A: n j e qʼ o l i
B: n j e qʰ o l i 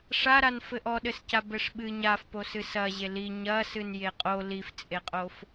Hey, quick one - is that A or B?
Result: A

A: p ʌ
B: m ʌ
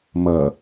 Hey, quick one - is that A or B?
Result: B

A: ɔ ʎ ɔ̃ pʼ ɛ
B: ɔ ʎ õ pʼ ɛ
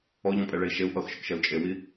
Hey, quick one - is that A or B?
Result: A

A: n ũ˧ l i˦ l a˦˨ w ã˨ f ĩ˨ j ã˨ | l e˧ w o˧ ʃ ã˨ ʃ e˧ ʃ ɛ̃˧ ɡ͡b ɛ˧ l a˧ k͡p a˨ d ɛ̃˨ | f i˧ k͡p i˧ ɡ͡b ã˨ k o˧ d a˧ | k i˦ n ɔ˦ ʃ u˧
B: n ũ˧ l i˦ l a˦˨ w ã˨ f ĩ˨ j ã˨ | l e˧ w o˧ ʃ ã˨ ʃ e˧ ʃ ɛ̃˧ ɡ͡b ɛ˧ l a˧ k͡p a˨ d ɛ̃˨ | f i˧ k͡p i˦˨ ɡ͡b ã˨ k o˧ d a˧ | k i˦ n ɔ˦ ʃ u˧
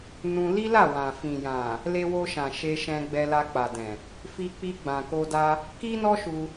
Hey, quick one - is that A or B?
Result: A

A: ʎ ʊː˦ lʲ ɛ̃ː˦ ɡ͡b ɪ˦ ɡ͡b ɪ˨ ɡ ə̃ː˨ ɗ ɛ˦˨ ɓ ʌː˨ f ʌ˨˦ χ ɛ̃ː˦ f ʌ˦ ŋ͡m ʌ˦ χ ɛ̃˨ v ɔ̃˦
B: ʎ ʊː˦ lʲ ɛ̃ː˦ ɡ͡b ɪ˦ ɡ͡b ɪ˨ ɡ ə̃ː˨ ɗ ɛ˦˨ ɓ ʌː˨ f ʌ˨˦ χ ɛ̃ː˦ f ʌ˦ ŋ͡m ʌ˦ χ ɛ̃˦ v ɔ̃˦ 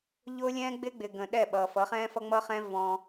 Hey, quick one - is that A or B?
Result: B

